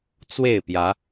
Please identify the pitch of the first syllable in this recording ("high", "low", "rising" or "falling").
falling